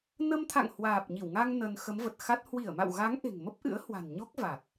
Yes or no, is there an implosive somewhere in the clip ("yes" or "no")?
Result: no